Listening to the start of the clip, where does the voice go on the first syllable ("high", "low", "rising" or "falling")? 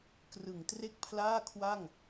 low